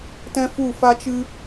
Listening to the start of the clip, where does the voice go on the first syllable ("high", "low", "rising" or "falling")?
high